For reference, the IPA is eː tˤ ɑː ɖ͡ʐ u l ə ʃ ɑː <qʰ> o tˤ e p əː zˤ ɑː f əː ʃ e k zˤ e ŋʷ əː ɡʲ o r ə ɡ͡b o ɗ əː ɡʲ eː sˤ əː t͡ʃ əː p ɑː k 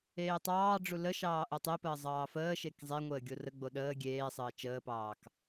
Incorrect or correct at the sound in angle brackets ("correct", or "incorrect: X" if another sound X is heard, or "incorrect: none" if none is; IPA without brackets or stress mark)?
incorrect: ʔ